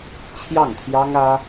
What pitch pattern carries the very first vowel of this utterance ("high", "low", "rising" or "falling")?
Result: falling